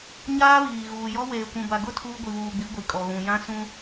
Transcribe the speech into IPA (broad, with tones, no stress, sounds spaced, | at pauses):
ɲ aː˦ β iː˨ ɣ uː˨ j ɔ˦ w eː˨ kʷ ũ˨ b a˨ ɡ ʊ˦˨ tʰ uː˦ ɡʷ i˨ β uː˨ ɡ͡b i˨˦ ɡʷ i˨ kʼ ɔ˨ ɣ ũ˨ j ã˦ s ũ˦